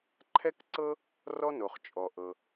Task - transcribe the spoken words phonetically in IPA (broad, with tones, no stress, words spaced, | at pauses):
ǃʰɛ˥kǀɤ˥ | rɔ˥no˩χ t͡ʃʼɔ˩ʔɤ˩